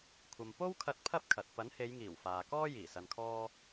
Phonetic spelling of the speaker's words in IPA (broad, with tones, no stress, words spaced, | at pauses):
kʷʰɐ˨m po˥wkʰɐ˧t̚ pʰɐ˥p̚kʰɐ˨t̚ pɐ˨˥nhe˨˧jŋiː˨˩w faː˨kɔː˥ jiː˨˩sɐ˨nkʰɔː˧